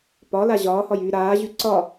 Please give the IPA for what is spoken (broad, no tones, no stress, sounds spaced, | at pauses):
p ɒ l a ʑ ɒː h ɒ j yː ɾ aː ʑ y ǀ ɒ